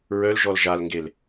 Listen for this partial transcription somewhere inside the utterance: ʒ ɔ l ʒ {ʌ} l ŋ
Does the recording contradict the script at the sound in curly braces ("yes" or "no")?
yes